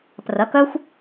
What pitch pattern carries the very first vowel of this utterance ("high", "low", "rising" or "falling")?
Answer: rising